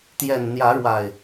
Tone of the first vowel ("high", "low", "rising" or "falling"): low